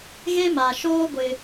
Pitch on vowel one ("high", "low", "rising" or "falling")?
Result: high